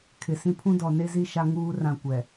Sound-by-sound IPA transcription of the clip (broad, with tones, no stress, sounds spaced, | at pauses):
kʰ ɪ˨ s ĩ˦ pʰ ũ˦ d ɔ˨ n e˦ z i˦ ʃ a˦ ŋ uː˦ r ã˦˨ kʷ ɛ˨